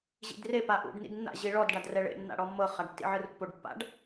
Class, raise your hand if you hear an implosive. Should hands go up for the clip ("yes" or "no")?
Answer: no